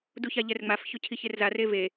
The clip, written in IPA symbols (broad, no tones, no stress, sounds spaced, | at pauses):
d u ç a ʎ ɛ r ŋ͡m a f ç ʊ cʰ i ç e r z a r e v e